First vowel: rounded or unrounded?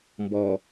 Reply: rounded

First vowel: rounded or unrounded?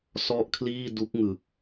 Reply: rounded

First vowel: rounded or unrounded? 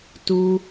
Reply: rounded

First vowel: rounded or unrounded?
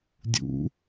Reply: rounded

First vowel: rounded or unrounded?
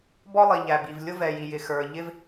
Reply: rounded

